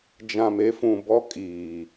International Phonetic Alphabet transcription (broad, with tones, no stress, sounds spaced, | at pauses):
d͡ʒ ã˨ m e˦ f ũ˨ b ɔ˦ kʼ iː˨